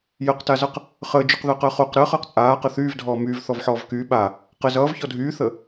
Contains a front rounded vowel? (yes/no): yes